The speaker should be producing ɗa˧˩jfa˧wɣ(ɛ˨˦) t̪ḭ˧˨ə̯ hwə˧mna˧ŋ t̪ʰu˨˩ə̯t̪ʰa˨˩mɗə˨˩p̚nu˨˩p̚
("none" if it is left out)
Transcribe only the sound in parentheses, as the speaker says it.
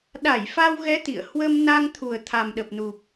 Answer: ɛ˨˦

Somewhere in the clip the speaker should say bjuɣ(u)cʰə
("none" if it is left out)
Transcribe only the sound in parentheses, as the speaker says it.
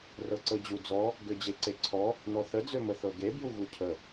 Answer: u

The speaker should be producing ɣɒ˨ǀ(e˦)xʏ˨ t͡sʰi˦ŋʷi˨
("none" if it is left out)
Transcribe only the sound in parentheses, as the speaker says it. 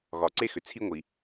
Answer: e˦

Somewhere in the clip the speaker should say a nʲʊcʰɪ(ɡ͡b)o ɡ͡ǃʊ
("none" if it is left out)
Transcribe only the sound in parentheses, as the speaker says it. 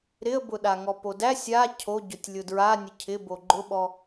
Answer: b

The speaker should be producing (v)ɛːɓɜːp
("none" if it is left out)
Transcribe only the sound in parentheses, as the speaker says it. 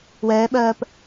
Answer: w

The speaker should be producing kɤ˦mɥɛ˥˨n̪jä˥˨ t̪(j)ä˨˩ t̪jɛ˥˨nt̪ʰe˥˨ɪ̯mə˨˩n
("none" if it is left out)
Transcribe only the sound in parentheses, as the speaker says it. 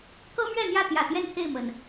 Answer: j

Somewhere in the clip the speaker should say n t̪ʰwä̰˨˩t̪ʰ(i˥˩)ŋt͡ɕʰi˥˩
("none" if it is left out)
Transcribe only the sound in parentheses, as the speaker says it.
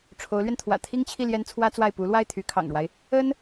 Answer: i˥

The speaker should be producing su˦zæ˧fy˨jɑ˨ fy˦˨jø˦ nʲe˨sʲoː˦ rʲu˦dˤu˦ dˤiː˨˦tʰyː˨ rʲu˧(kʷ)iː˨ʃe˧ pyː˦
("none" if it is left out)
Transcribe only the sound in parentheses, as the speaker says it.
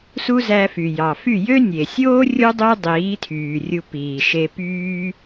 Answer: p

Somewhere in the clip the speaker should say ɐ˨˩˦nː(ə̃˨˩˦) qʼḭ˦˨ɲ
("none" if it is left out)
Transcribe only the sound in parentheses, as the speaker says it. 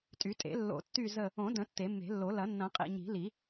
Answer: ɐ̃˨˩˦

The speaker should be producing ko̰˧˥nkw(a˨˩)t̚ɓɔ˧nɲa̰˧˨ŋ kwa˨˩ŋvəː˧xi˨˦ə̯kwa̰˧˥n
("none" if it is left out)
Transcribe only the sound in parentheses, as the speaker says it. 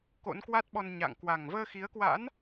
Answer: a˦˥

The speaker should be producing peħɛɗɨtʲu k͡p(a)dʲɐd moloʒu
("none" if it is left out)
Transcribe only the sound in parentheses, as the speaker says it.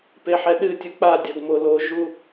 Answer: a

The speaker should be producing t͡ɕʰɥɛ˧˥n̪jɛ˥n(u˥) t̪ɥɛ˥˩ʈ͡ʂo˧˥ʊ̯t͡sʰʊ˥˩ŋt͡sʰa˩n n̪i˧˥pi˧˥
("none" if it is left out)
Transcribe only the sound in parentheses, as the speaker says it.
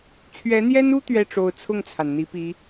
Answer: u˥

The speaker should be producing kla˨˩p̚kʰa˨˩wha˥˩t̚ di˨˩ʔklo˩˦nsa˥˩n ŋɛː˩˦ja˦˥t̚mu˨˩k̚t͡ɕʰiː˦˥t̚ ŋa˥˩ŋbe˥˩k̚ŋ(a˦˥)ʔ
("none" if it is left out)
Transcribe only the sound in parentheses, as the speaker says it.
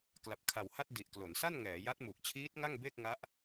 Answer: a˦˥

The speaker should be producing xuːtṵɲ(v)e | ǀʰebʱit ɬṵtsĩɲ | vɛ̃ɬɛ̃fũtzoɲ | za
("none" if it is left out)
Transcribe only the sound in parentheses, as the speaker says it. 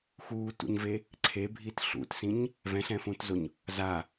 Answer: v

